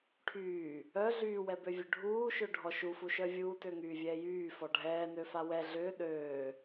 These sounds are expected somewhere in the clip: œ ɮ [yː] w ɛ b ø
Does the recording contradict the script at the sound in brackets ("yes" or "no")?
no